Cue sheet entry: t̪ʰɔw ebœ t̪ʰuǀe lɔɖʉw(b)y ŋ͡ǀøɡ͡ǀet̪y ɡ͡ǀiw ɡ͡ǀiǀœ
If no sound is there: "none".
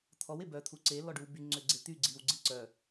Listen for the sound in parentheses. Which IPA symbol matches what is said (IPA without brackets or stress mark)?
b